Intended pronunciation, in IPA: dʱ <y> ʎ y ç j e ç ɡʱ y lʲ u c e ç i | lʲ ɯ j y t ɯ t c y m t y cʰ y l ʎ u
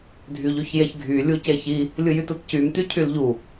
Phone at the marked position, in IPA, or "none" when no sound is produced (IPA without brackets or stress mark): y